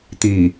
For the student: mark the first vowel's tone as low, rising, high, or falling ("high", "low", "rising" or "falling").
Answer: low